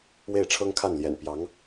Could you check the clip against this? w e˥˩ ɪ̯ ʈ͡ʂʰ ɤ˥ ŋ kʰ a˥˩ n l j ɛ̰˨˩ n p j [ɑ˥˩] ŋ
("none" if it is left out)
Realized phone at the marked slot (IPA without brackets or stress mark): ɑ˧˥